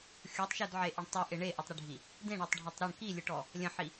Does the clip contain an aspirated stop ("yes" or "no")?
no